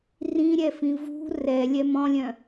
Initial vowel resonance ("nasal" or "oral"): nasal